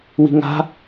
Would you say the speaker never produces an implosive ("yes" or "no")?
yes